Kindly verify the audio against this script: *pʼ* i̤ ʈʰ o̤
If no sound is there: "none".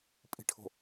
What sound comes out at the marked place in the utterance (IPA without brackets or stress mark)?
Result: pʼ